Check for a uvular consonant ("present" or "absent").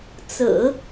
absent